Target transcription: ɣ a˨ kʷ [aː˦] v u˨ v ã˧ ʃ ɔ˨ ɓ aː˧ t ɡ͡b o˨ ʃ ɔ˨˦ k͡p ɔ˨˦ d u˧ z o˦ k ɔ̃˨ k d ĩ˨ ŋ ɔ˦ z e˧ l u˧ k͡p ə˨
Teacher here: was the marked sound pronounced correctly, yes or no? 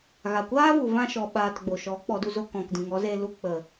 yes